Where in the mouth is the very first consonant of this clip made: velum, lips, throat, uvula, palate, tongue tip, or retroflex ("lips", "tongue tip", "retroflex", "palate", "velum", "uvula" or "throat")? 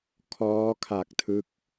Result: velum